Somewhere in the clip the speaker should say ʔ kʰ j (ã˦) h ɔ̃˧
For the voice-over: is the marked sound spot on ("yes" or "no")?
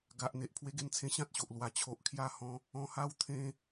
no